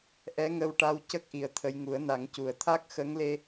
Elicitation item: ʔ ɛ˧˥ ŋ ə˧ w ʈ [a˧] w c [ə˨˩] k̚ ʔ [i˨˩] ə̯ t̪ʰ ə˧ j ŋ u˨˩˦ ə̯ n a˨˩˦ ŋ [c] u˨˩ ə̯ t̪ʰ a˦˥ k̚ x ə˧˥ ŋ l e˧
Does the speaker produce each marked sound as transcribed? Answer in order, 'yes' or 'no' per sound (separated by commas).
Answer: yes, no, yes, yes